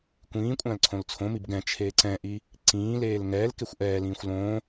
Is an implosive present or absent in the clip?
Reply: absent